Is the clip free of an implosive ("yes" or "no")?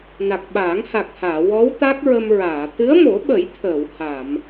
no